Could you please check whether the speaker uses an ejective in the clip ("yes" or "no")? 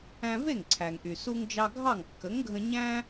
no